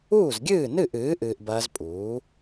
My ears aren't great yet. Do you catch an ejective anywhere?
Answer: yes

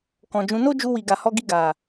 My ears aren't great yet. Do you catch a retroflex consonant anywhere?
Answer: no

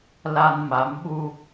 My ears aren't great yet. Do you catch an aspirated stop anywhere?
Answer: no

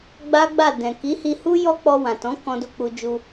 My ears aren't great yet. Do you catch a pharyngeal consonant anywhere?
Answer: no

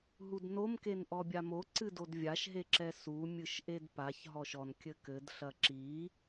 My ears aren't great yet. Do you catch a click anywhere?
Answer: yes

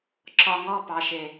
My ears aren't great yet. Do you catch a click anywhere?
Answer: yes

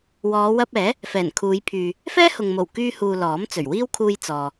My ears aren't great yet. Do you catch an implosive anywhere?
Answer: no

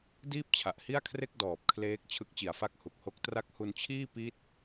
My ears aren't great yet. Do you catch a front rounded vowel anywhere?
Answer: no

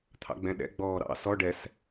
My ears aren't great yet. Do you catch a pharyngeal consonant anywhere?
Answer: no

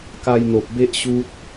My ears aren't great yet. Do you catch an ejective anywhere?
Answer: no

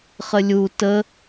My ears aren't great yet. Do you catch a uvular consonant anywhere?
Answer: yes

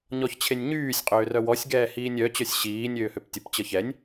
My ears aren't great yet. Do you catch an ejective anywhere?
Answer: yes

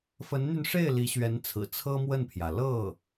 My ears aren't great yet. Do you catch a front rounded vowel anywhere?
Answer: yes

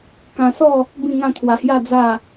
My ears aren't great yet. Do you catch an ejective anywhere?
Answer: no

